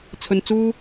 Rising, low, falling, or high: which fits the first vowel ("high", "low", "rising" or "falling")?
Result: low